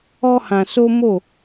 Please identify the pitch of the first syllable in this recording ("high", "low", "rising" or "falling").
high